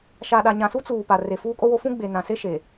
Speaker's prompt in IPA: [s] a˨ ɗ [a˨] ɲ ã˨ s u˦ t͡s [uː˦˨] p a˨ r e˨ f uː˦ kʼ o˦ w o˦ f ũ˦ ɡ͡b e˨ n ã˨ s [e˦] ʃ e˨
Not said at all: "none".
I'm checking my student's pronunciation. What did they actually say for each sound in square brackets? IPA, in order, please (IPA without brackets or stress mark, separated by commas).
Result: ʃ, a˨, uː˨, e˦